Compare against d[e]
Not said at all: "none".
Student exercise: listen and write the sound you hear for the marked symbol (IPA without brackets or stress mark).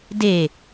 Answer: e